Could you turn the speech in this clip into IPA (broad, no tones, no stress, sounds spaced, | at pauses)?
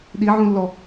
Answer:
ɗ i ʕ ũ lː ɔ